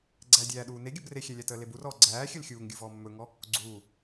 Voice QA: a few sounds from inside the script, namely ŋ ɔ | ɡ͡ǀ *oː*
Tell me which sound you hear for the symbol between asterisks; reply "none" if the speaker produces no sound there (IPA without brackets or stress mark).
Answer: uː